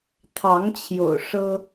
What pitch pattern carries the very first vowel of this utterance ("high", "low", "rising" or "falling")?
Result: rising